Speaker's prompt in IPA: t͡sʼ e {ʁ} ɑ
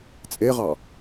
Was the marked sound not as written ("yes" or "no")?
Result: no